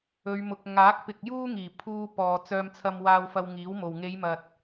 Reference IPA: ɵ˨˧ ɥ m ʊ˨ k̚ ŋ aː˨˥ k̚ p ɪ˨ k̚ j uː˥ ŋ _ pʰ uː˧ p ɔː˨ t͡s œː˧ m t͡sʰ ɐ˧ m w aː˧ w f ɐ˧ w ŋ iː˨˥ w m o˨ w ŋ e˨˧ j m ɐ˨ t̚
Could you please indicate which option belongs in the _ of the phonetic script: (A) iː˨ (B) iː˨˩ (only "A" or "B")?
B